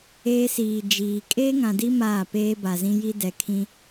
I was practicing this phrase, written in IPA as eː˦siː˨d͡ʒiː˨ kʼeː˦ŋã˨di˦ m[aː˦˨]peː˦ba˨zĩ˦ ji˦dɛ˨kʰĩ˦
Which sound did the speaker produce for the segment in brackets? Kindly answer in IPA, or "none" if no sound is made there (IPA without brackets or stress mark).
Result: aː˦˨